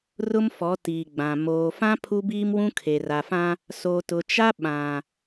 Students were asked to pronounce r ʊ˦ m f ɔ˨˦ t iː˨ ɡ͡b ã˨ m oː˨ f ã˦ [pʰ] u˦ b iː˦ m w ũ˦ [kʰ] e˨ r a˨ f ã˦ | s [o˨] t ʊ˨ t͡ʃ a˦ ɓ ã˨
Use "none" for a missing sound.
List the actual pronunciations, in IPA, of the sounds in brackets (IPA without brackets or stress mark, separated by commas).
pʰ, kʰ, o˨